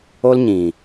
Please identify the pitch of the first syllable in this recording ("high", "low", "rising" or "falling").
high